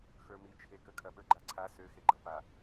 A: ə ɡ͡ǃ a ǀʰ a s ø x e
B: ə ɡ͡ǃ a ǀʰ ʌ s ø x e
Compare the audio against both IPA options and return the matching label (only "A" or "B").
A